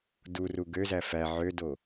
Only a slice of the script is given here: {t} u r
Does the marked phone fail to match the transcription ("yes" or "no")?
yes